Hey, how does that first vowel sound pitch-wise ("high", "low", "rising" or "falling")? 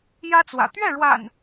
high